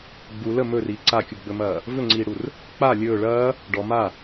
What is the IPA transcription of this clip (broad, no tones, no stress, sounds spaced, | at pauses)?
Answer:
ɡ͡b u l ə m ɵ r iː ǀ a kʲ u ɡ͡b ɵ m ɐː | v ɵ ŋ͡ǀ iː ɽ u r | k͡p a lʲ ɵː ɭ ɐː | ɖ ɔ m a